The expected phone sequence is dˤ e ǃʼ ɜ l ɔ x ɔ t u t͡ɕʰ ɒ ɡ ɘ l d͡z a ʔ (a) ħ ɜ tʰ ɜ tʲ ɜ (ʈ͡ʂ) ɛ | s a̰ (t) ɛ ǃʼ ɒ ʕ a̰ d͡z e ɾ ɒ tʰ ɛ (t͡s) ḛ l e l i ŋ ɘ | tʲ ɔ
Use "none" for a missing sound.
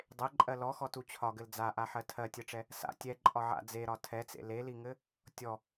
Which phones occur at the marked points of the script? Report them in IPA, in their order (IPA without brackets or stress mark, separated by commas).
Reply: a, ʈ͡ʂ, tʲ, t͡s